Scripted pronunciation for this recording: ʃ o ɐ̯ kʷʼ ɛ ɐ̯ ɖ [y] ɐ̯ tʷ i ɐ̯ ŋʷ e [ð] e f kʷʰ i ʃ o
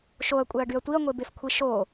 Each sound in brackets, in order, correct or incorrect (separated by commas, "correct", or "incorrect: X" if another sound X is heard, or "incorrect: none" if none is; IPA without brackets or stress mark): correct, incorrect: b